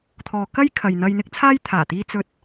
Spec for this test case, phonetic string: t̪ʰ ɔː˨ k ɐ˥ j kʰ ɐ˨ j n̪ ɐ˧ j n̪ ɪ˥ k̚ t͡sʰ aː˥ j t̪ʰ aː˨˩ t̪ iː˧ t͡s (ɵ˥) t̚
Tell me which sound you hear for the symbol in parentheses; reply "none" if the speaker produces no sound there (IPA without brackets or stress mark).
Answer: ɵ˥